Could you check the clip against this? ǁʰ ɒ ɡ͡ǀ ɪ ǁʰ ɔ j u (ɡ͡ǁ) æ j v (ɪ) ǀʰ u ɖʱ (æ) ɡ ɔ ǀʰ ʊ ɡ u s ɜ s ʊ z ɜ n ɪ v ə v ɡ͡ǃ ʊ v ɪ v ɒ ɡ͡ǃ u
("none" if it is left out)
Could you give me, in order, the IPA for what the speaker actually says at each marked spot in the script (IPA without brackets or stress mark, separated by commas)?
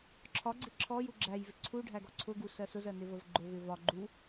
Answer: ɡ͡ǁ, ɪ, æ